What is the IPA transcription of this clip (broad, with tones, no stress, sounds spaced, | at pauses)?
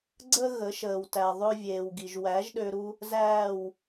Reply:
ɡ͡ǀ əː˦ ɣ ə˨˦ ʃ əː˨ w t æ˨ ðˤ ø˧ vʲ eː˨ w ɡ i˨ ʒ w æ˨˦ ʒ ɗ ø˧ ɾ u˧ | z æː˦˨ w